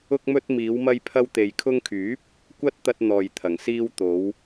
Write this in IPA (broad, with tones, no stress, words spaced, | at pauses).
ʊ˧k̚mɵ˧t̚miː˨˧wmɐ˧j pʰɐ˧wt̪e˨jkʰʊ˧ŋkʰyː˨˥p̚ | kʷɐ˥t̚t̪ɐ˧t̚n̪ɔː˨j t̪ʰɐ˨˩ŋsiː˧w t̪o˨˧w